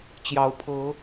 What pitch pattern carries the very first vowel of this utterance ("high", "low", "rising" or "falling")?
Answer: rising